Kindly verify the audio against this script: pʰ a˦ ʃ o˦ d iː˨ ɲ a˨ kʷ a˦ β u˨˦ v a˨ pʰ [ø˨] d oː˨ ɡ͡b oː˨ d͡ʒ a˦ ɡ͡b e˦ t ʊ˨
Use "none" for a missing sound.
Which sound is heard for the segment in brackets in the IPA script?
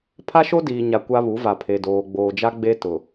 e˨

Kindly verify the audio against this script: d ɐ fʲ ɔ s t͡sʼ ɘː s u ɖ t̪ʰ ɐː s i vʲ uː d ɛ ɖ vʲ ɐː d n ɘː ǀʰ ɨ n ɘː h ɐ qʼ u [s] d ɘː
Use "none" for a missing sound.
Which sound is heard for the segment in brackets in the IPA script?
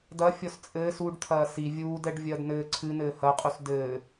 s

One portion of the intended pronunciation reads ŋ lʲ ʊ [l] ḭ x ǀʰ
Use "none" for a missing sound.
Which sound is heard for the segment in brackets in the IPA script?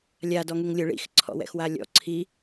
ɭ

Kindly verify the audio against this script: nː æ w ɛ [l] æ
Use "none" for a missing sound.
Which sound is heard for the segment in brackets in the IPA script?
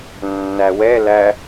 l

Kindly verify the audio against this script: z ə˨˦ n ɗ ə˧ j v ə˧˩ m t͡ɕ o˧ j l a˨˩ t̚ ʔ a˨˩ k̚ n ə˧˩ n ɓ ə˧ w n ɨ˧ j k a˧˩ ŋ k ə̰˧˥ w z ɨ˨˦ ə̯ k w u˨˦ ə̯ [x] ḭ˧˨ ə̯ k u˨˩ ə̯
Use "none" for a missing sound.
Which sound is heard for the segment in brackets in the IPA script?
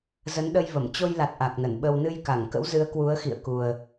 x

